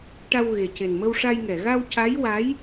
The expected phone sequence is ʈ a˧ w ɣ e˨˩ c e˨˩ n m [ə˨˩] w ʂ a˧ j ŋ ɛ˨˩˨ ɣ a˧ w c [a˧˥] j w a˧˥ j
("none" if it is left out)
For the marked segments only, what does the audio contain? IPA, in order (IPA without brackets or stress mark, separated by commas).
ə˧, a˧˥